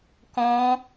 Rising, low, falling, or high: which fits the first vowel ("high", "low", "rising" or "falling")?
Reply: high